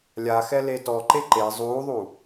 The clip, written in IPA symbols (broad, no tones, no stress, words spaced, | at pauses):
lʲaxɛ letɔ ǃeǃe zˤuːðˤu